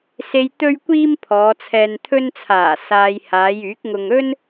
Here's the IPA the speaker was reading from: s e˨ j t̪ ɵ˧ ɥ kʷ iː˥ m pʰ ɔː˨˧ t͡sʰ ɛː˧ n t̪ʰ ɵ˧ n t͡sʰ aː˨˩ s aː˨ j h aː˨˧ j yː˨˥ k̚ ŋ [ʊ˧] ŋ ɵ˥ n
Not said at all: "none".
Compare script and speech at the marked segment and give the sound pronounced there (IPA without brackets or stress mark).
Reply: ʊ˧